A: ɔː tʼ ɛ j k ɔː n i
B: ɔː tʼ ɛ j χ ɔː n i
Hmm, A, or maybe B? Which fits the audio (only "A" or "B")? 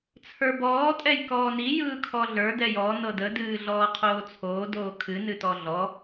A